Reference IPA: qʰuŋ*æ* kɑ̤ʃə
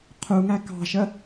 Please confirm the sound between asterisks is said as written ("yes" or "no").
yes